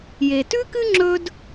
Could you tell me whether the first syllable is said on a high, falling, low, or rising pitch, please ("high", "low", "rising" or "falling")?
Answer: low